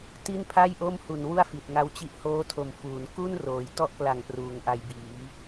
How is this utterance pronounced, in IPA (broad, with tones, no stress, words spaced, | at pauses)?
ti˥˩npʰa˥˩j ʔo˥˩mhu˨˩nwu˥˩a̯ fi˨˩t̚ŋa˦˥wt͡ɕi˦˥ʔ hoː˦˥tʰo˨˩m fuː˩˦n ku˥˩n roː˨˩j tɔ˥˩ʔkla˨˩ŋ pruː˩˦ŋʔa˧jbiː˩˦